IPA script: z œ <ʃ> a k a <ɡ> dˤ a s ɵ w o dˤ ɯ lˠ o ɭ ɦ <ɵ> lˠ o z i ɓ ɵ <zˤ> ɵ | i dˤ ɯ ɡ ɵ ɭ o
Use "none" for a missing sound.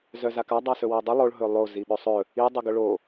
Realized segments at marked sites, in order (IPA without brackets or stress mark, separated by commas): z, none, ɵ, sˤ